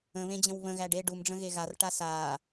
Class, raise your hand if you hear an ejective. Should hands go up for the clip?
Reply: no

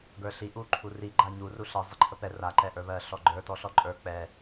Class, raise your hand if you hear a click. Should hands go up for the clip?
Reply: yes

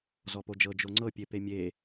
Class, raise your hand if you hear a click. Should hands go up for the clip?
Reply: yes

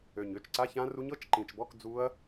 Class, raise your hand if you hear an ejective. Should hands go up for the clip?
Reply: no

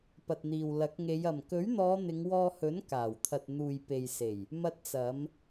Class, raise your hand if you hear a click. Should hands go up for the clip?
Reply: no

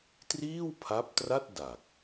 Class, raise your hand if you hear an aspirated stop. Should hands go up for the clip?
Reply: yes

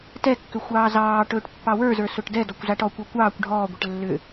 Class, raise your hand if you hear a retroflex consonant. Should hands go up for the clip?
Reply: yes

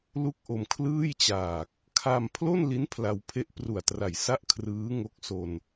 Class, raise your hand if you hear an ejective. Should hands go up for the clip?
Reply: no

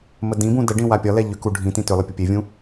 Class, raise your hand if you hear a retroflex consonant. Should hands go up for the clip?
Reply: yes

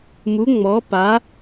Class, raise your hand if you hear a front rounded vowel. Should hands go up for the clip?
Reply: no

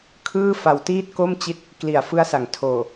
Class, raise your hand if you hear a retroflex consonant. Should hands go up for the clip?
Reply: no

